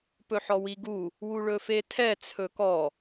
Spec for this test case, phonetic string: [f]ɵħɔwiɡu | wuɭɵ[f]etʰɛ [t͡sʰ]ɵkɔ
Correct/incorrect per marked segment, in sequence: incorrect: p, correct, correct

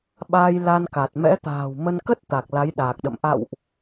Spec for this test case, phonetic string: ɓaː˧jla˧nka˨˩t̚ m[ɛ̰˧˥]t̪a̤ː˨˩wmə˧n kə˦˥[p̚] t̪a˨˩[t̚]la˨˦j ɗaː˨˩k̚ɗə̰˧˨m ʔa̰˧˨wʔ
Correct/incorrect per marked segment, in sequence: correct, incorrect: t̚, incorrect: k̚

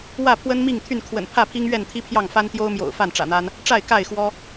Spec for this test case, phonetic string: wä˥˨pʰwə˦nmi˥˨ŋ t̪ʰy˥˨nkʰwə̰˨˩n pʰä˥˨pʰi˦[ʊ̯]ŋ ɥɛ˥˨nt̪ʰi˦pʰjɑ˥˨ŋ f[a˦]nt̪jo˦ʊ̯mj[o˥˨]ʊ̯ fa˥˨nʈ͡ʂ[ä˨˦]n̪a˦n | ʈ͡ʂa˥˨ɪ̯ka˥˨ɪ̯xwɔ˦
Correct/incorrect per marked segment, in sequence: incorrect: none, correct, incorrect: o̰˨˩, incorrect: ä̰˨˩

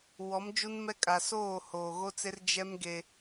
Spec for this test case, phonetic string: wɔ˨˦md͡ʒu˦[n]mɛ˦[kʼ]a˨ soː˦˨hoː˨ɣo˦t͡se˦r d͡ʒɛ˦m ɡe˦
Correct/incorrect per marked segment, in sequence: correct, correct

